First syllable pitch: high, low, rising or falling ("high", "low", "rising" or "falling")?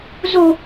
high